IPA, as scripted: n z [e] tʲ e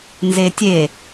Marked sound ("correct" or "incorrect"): correct